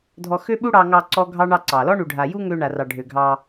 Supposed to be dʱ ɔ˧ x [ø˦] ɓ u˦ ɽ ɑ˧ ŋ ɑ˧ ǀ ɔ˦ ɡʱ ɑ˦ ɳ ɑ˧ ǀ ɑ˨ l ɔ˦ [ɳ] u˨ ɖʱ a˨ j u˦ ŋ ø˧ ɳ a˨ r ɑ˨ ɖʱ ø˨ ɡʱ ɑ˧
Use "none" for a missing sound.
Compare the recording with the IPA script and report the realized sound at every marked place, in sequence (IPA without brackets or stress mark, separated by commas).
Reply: ø˦, ɳ